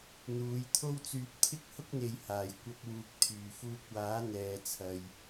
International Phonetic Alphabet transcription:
n̪ uː˨˧ j t̪ʰ o˥ w t͡s yː˧ p̚ t̪ʰ ɪ˥ k̚ h ʊ˥ k̚ n̪ e˨ j h aː˨˩ j kʷ ɐ˧ p̚ w uː˨ k̚ t̪ʰ yː˨˩ f uː˧ k̚ w aː˨˥ n̪ ɛː˨ t͡sʰ ɐ˨ j

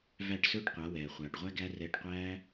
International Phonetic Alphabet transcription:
v æ˦˨ ʈ s ɵː˦ ʈ qʷ a˨˦ w ɛː˨ χʷ aː˨ ʈ ʁʷ æ˦ ɡ æ˦ r ɛː˧ ʈ qʷ æː˦

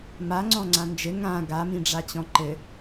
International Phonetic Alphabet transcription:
m a ŋ͡ǀ ɔ̃ ŋ͡ǀ ã n d͡ʒ ɘ ŋ ã ɡ a m ĩ ɖ͡ʐ a t͡ɕ ɔ̃ ǃ ɘ

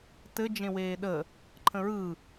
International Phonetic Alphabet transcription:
t ɘ d͡ʒ ẽ w eː ɗ ə | ǃʰ ə̃ ɹ ɯ

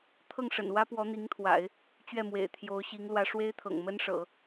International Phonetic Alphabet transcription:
t̪ʰ ɤ˥˩ ŋ ʂ ə̰˨˩ n w ä˥ p w ɔ˧˥ n̪ i˧˥ ŋ t̪ʰ w a̰˨˩˦ ɪ̯ | t͡ɕ ɥ ɛ˥˩ m w ḛ˨˩ ɪ̯ t̪ʰ j o˧˥ ʊ̯ ɕ i˧˥ ŋ l w ä˧˥ ʂ w e˥ ɪ̯ t̪ʰ ɤ̰˨˩ ŋ m ə˥ n ʂ ɤ̰˨˩˦

